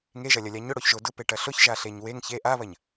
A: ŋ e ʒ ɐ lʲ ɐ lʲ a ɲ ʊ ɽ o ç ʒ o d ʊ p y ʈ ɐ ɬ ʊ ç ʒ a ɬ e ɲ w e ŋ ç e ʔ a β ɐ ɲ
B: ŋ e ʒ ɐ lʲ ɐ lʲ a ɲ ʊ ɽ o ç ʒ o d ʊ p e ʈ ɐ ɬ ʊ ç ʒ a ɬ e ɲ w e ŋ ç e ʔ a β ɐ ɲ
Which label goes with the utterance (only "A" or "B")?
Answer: B